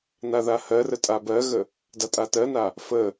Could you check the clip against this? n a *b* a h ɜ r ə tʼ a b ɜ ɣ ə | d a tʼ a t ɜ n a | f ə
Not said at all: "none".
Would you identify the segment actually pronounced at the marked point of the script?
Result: ð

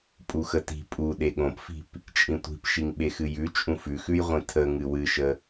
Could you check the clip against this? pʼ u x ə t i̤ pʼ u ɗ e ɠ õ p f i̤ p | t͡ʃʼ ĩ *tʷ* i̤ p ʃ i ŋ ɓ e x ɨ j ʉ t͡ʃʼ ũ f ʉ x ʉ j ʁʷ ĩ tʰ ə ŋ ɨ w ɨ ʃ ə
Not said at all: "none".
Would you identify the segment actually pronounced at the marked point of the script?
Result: tʷ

